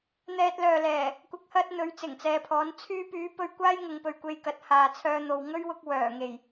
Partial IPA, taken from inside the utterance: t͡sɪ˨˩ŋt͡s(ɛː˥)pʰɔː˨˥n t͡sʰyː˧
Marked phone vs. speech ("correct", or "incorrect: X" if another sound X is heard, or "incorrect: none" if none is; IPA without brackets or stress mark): incorrect: ɛː˨